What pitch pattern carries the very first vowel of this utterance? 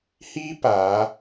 high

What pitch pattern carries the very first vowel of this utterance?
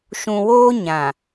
low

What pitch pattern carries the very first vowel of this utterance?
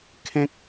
high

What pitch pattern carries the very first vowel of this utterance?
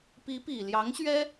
rising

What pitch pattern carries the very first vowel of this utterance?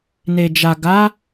low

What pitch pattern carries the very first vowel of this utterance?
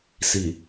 low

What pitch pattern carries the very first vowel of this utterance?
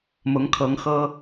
rising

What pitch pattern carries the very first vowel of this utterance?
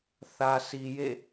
low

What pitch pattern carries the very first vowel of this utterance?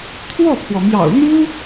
falling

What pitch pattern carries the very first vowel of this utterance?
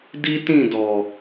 high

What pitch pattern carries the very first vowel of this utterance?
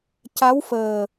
rising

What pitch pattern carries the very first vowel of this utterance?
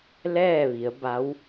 falling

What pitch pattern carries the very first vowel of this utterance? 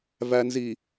low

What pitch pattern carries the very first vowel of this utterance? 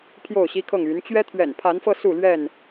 falling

